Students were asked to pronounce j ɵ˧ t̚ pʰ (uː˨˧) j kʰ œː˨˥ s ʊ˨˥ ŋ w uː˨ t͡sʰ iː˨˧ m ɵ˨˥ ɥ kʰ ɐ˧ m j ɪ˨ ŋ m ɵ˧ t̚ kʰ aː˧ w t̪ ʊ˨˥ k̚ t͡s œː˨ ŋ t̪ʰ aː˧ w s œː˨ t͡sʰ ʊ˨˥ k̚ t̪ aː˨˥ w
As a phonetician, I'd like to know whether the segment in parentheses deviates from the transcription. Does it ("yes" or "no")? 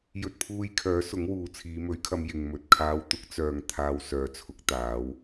yes